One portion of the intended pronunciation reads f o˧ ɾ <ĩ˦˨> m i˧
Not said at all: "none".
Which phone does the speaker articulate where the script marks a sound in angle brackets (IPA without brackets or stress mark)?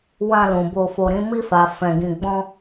ĩ˦